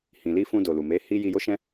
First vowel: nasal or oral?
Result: nasal